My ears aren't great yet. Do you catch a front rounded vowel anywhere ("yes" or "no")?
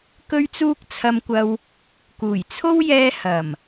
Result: no